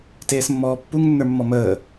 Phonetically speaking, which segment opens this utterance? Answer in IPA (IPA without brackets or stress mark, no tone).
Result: t